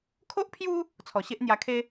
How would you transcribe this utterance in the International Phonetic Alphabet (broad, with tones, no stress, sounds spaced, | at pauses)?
kʰ o˦ ʔ pʰ j u˦ | t͡sʰ ɔ˨˩ ɕ e˦ ʔ n̪ j a˧ kʰ e˦